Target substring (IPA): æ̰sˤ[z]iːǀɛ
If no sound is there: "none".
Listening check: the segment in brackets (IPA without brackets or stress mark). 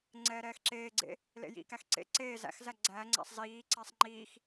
z